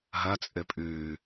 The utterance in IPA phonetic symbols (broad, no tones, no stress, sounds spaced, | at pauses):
ɦ ɐ t͡sʼ ɘ pʼ ʉː